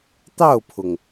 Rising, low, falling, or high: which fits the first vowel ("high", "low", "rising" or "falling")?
falling